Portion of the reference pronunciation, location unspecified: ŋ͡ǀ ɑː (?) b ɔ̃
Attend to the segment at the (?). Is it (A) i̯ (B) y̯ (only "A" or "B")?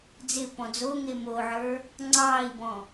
A